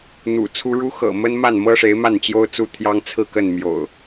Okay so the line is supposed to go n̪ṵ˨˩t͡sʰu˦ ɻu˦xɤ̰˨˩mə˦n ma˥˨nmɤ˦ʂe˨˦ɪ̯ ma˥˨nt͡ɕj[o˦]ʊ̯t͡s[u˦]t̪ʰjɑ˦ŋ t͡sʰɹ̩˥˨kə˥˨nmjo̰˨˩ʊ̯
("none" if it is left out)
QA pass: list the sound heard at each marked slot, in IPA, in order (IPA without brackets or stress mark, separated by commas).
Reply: o˦, u˦